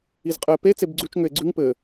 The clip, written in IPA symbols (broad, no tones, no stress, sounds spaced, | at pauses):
i z qʼ ɘ e̯ p e t͡s e b ɡ͡ǀ ʉ t͡ʃ ŋ ʏ e̯ ɡ͡ǀ ʉ ŋ p ɘ